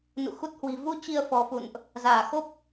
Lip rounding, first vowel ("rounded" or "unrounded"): rounded